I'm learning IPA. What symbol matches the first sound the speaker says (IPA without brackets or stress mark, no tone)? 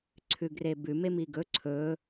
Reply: ǀʰ